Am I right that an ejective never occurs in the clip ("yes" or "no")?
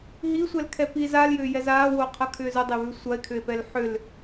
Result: yes